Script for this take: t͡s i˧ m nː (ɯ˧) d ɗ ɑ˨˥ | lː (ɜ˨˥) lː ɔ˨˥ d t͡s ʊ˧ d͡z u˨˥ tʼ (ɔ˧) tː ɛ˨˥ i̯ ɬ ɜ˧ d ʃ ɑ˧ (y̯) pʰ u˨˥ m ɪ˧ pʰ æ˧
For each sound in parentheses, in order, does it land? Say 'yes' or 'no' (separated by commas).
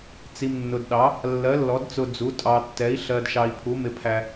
no, yes, no, no